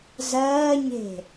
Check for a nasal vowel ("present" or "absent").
absent